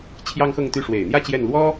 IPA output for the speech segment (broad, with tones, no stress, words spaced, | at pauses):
t͡ɕʰjɑ˥ŋxɤ˥˧ŋt̪y˥˩ ʂwe˨˩ɪ̯n̪jä˥˧ t͡ɕjɛ˥˩nlwɔ˥